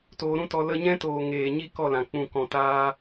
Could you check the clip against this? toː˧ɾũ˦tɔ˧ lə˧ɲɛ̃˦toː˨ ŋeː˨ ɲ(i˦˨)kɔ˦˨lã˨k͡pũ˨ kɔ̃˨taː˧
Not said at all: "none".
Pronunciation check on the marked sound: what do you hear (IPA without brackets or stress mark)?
i˦